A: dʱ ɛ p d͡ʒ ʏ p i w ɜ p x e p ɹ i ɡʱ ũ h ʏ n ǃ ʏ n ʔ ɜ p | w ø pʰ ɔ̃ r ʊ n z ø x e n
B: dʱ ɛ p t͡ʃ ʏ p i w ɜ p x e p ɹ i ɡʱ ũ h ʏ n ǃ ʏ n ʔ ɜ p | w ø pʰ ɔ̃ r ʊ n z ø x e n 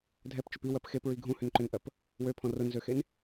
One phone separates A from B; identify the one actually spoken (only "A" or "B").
B